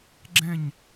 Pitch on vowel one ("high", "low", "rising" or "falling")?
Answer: falling